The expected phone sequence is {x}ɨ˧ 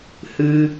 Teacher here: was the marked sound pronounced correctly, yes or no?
no